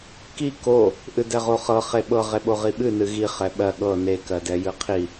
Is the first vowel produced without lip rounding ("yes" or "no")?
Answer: yes